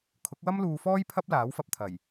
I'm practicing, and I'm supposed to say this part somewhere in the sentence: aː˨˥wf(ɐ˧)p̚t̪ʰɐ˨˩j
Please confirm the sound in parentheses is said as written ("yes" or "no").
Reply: yes